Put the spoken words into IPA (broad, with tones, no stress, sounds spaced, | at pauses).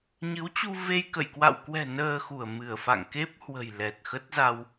ɲ ɨ˨˦ w t͡ɕ u˧ v e˧ j k ə̰˧˨ j k w a̰˧˨ w k w ɛ̤˨˩ n əː˧ x u˧˩ ə̯ m ɨ˧˩ ə̯ f a̰˧˨ ŋ k e˦˥ p̚ h w ə̤˨˩ j l ɛ˨˩ t̚ x ə˦˥ t̚ z a˧ w